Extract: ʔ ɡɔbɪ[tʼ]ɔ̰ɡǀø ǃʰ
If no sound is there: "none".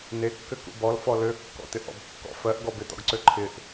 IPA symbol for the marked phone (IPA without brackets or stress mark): t̪